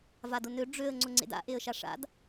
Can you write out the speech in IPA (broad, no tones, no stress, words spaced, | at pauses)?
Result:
vadʊnø ɖ͡ʐøə̯ ŋ͡ǀʊŋ͡ǀḛda̰ ʔeə̯ʃaʂa̰d